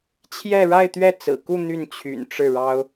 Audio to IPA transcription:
t͡ɕʰjɛ˥˧ɻa˥˧ɪ̯t̪ɥɛ˥˩ t͡sɹ̩˨˩ku˥˧ n̪y˥˩nt͡ɕʰy̰˨˩nʈ͡ʂɻ̩˥˩ɻɑ˥ʊ̯

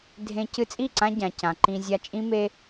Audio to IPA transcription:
dʱẽ˧ cɨ˧t͡sʼi˦˨ǀã˧ ɟã˨cã˨ ǃĩ˧zʲa˧t͡ʃʼĩ˦me˦

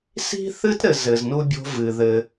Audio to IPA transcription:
si̤˥θɨ˥tɾɘ˨z ɘ˨znu˥bʲo̤˦ vɨ˩ ðɘ˨

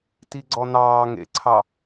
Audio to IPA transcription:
tiɡ͡ǀɔnɑː ŋḛǀʰɑ

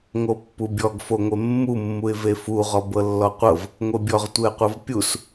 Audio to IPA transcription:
ŋopːubʲɔɡ foŋʷemːumːuɪ̯ vefuʁɔ bɤlːɔqʷɤv | ŋʷebʲɔʁtʷeə̯qʷɤv pʲus

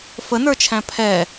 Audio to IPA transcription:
fənə˞t͡ʃʰæ̃ pʰɛ

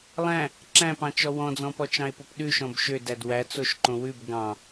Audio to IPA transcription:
lˠæ̃ | ǁæ̃pɑ̃t͡ʃɔ wɔ̃d͡zɔ̃pɔ t͡ʃɑ̃e̯popɗʉ ʃɔ̃bʃø dædwæ t͡soʃǃõwʉb ɡɑ̃

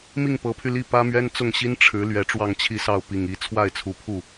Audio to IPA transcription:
mi˥˩ŋpɤ˧˥pʰy˧ li˥˩ pä˥mɥɛ˥n t͡sʊ˥˩ŋɕi˥n ʈ͡ʂʰɻ̩˧˥ lɥɛ˧˥ʈ͡ʂwɑ˥˧ŋt͡ɕʰi˥˧sɑ˥˩ʊ̯ pi˨˩ŋi˧˥ t͡sʰwa˥˩ɪ̯t͡sʰu˧˥pʰu˥˩

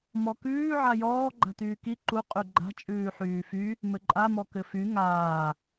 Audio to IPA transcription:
mɔkʉː ʕajɔː ɡ͡ǃa̤tyːki ǃu qʼyɡ͡ǃa̤ t͡ʃʼʉːħyːfy | mɘǃʼa mɔkɘfy ŋaː

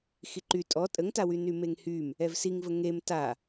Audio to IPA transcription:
xiǃy tʼɔ tʼəŋtawy nymeŋhym | ɛvsiŋvə ŋem ta

